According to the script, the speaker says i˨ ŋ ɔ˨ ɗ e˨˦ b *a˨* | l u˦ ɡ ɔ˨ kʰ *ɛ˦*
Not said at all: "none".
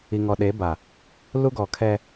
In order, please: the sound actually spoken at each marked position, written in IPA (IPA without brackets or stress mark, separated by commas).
a˨, ɛ˦